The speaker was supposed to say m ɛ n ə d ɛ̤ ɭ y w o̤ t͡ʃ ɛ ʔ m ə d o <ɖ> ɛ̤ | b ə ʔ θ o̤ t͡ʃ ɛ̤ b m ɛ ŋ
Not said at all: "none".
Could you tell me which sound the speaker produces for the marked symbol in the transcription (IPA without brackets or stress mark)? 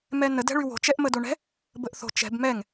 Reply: ɳ